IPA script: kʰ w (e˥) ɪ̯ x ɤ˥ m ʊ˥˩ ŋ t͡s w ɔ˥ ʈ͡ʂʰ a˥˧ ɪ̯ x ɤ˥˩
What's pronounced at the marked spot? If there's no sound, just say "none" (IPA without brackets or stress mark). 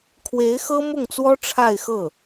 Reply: e˧˥